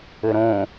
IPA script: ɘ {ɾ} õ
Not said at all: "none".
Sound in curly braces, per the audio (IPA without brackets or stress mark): ɾ